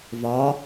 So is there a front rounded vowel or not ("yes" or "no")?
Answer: no